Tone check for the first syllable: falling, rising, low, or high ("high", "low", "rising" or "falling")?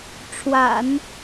low